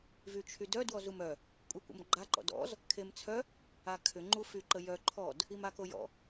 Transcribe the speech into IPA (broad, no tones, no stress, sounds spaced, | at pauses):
v y t͡ʃʰ y d œ d w ɔ z u m œ | kʷʼ e kʷ ə̰ m ɡ͡ǃ a ǃ ɔ̰ d ɔ̰ z | kʰ e m t͡sʰ œ | a kʰ ʏ ŋ͡ǃ u f y ǃ ə j œ ǃʰ ɔ d | i m a k o j ɔ̰